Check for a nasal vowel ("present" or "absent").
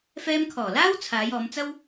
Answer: absent